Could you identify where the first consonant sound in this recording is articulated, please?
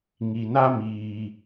velar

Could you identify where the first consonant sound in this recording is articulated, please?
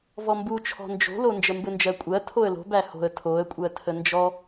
labial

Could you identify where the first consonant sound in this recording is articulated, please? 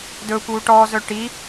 alveolar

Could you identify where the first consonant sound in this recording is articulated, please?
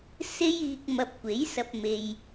alveolar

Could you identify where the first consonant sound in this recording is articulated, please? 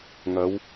velar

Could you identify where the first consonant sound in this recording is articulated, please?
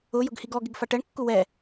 palatal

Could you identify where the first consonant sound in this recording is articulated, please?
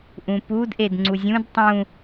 glottal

